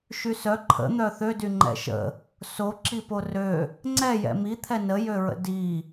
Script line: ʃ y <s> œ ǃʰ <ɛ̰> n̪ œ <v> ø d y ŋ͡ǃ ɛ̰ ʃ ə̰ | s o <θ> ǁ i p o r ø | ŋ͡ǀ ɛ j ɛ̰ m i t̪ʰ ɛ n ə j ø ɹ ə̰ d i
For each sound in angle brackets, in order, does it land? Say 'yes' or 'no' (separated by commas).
yes, no, no, no